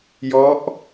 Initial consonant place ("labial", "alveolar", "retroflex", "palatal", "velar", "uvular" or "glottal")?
palatal